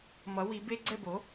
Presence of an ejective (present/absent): absent